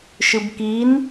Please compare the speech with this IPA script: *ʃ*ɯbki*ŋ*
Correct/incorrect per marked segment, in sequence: correct, incorrect

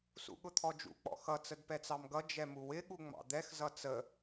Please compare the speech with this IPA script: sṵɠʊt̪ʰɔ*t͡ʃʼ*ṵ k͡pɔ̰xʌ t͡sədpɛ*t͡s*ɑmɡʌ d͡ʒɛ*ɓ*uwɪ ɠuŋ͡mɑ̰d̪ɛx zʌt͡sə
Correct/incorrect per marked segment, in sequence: incorrect, correct, incorrect

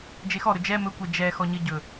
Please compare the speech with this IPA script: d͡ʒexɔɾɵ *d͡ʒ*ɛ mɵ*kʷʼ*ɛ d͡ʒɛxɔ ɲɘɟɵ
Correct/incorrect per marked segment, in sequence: correct, incorrect

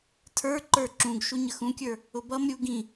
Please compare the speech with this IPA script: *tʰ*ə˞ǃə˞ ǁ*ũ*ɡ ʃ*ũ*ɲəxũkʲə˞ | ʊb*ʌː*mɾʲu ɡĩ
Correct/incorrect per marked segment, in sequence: correct, correct, incorrect, incorrect

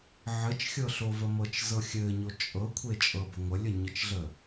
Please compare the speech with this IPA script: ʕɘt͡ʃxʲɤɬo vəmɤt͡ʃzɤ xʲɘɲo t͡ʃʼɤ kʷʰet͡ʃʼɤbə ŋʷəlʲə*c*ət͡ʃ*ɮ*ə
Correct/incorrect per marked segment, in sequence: incorrect, correct

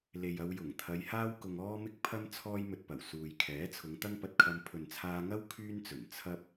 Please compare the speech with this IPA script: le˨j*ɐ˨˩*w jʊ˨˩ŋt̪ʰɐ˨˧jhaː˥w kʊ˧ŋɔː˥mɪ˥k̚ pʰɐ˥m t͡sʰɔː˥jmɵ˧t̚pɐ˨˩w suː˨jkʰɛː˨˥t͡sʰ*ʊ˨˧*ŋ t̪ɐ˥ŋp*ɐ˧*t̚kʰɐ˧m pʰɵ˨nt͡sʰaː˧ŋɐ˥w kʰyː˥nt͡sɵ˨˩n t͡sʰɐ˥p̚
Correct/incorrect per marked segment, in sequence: incorrect, correct, correct

